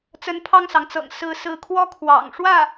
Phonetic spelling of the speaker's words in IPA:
t͡s ə˧˥ n pʰ ɑ˥˩ ŋ s ɑ˩ ŋ t͡s ɤ̰˨˩ ŋ s ɹ̩˧˥ s ɹ̩˧˥ kʰ w ɔ˥ kʰ w ɑ̰˨˩ ŋ ʂ w ä˥˩

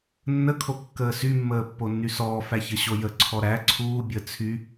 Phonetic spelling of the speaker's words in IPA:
nː ə kʰ o kː əː s y mː əː pː o nː y s ɔː f æ ç ə ɕ o j ə ǀʰ ɔ ɾ æ ǀʰ uː bʲ əː t͡sʰ y

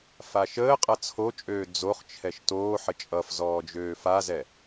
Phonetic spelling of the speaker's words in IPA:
f a ʃ əː qʼ ʌ t͡sʰ o t͡ʃʼ øː d͡z o χ t͡ʃʰ ɛ ʃ t oː ħ ə t͡ʃʼ ʌ f z ɔː d͡ʒ øː f a z ɛ

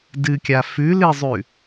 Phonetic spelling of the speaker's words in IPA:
d ɨ kʲ a f ʉ l ɨ zˤ ʉ

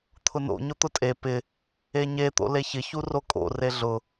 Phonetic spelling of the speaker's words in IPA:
t̪ʰ ʊ n o̰ ɲ ʊ t̪ ʊ tʼ e p ɪ | e ɲ e t̪ o̰ l e ç ɪ ç u r o kʼ o̰ r e ɮ ʊ

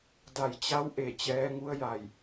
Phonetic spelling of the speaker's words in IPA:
d a˧˩ j t͡ɕ a˧˥ w ʔ e˧˩ t͡ɕ ɛː˧˥ ŋ u˧˥ ə̯ j a˧˩ j

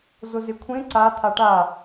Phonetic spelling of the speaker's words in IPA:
z ʊ z ɪ kʷʰ ẽ ǀ a t̪ʰ a ʈ a

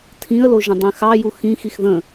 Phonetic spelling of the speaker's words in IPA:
tʰ ĩ ə̯ l o ʒ ə̃ dˤ ẽ x ɑ j u x ĩ x i x ð ə̃

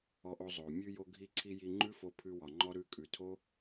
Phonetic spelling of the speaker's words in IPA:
ɔ˧ ʔ o˧ zˤ o˨ mʲ ʉ˧ j o˧ ɡʱ i˧ ǀʰ i˧ j i˧ ŋ͡ǃ ʉ˦ f o˧ pʰ ʉ˧ w ɒ˨ ŋ͡ǃ ɔ˧ ɾ ʉ˧ kʼ ʉ˨ tʰ o˦

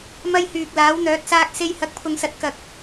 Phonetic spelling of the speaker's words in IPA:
m ɐ˧ j h yː˨ k̚ l aː˨˥ w n̪ œː˨˥ t̚ s aː˥ k̚ s e˧ j h ɐ˨˥ k̚ pʰ ʊ˨ ŋ s ɐ˨˥ t̚ k ɐ˧ k̚

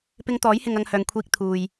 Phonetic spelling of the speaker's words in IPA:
p ɪ˧ ŋ t̪ ɔː˨˥ j h ɪ˨ ŋ ɐ˧ ŋ h œː˨ ŋ kʷʰ iː˧ k̚ t̪ʰ uː˨ j

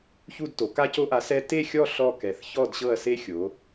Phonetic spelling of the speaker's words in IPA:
ç u˦˨ d t o˩˧ k a˦ c o˦ ʔ a˨˥ s ɛ˦ t e˦˨ xʲ ɔ˦˨ ɬ ɔ˦˨ k ɛ˩˧ θ ç ɔ˦˨ d ɕ ɤ˦˨ ɐ̯ s e˦ xʲ o˩˧

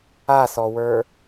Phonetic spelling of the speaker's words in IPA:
a s ɔ w ə˞

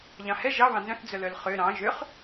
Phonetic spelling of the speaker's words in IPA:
ʎ ɑ̃ h ɛ ʒ ɑ β ɑ̃ n z œ̃ θ d͡z œ l œ l χ ø ɾ ɑ̃ ʒ ø χ

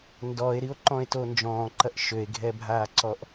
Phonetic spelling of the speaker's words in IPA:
n d ɔ e̯ ɾ i o̯ ǃ ɔ̃ e̯ t o n d͡ʒ ɔ̃ː ǃ ɐ ʔ ʃ ø e̯ ɡʱ ɛ bʱ aː ǀ ɔ ʔ

